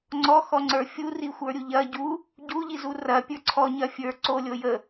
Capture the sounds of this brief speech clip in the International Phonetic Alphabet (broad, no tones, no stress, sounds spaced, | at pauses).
ŋ͡ǀ ɔ x ɔ ŋ͡ǀ ə˞ fʲ u r i xʷ ə˞ ɾʲ u ʎ ɐ ɟ u | ɟ u ʎ i z u r ɐ pʲ ə˞ ǀʰ ɔ ɲ ɐ fʲ ə˞ ǀ o lʲ o j ə